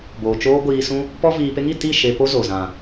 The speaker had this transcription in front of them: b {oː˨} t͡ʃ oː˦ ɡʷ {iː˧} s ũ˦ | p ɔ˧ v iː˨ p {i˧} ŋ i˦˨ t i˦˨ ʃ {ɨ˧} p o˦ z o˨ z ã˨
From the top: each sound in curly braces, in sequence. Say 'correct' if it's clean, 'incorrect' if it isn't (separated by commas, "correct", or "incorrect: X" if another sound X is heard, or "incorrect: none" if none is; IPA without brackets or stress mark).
correct, correct, incorrect: e˧, incorrect: e˧